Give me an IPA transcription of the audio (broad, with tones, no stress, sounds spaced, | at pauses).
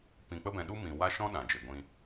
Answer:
p ĩ˧ k͡p ə˦ b ɛ̃˧ ɗ u˦ m ĩ˧ w a˦ ʃ ɔ̃˦ ɗ ã˨ d͡ʒ e˨ ɡʷ ĩ˧